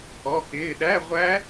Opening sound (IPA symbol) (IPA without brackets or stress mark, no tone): ɔ